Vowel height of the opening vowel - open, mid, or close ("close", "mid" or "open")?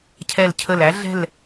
mid